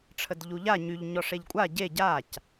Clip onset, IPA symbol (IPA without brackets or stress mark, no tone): ʈ͡ʂʰ